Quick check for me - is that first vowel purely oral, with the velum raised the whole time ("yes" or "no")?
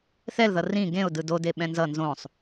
yes